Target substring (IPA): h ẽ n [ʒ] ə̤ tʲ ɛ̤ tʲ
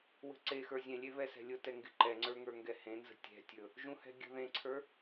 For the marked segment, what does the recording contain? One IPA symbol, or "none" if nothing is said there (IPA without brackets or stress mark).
z